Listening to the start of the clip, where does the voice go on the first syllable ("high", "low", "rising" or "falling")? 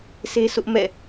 high